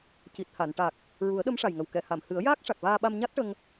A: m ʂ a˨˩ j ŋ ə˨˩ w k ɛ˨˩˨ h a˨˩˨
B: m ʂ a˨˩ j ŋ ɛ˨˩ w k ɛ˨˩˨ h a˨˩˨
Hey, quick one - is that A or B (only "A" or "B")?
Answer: A